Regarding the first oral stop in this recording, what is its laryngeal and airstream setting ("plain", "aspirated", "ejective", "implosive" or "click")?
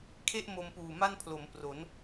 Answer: aspirated